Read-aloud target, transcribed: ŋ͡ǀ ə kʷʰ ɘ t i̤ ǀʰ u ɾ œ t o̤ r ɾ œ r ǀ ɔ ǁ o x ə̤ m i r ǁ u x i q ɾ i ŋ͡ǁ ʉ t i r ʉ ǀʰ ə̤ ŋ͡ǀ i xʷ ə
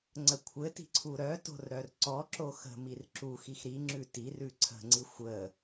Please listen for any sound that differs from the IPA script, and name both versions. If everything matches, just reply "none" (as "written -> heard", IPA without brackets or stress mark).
q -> x